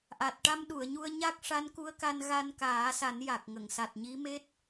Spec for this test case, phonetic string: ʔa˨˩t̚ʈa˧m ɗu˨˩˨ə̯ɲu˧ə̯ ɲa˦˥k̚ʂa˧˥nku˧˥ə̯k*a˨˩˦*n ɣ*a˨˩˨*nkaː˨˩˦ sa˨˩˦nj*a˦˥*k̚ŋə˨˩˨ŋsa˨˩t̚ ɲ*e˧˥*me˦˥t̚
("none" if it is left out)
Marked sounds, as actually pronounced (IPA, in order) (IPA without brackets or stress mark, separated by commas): a˧, a˧, a˨˩, i˧˥